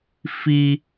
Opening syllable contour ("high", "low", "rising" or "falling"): high